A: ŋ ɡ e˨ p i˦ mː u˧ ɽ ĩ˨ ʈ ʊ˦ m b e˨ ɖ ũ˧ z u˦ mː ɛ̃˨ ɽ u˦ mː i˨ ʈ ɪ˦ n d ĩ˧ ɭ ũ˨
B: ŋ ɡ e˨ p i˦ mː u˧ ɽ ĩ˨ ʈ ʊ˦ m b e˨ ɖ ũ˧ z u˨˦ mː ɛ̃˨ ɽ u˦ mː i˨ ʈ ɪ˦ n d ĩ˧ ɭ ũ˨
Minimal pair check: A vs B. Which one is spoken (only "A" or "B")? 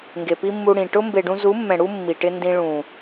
B